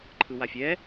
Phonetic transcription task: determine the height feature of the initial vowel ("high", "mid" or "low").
high